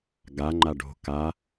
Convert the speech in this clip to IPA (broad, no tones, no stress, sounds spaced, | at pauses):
ɡ a ŋ͡ǃ a ɖ o̤ k a